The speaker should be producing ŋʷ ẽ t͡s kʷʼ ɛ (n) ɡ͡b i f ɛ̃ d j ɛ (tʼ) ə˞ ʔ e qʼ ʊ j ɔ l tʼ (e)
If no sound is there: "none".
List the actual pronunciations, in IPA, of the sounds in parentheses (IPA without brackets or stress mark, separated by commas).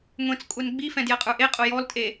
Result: n, qʼ, e